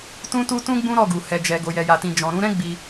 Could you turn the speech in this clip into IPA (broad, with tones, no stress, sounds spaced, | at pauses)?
t ũ˦ t u˦ t ũ˦ ɡ͡b ũ˦ ɾ ɔ˦˨ ɡ u˨ h ɛ˨ d͡ʒ ɛ˨ ɡ o˨ j ɛ˨ j a˨ t ĩ˨ d͡ʒ ɔ̃˨ ɾ ũ˨˦ ɾ ɛ̃˦ ɡ͡b i˧